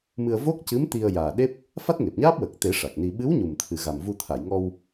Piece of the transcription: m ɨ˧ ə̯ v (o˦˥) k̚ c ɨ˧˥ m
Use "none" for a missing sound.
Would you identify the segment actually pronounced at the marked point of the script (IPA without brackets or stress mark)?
o˦˥